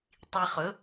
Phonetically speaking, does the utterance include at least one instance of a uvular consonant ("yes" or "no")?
yes